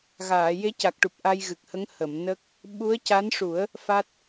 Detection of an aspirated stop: absent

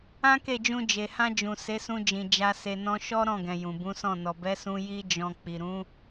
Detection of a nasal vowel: present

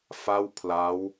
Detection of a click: absent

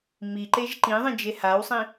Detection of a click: present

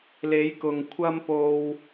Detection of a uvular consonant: absent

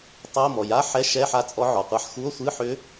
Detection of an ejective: present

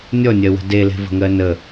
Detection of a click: absent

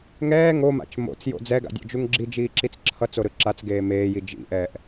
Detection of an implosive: absent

